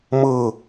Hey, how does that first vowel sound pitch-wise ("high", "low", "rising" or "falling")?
falling